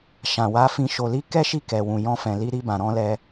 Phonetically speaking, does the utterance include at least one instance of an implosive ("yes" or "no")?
no